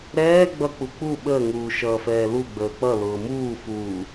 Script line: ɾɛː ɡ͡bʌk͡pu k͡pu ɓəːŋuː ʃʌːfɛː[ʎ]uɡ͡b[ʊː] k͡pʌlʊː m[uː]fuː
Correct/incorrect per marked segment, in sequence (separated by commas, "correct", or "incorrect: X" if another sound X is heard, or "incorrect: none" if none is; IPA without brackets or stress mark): incorrect: l, incorrect: əː, correct